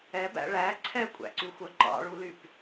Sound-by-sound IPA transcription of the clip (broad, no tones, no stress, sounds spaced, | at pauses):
ɛ b æ̰ ɭ æ ǀʰ ɛ kʷʼ æ̰ ǀ y xʷ œ ǃ ɑ̰ ɭ u l y p